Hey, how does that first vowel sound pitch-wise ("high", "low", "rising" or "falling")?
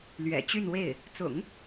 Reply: low